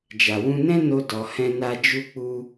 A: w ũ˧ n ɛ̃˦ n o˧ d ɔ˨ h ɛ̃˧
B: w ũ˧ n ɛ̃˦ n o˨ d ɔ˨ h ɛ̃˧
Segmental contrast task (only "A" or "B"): A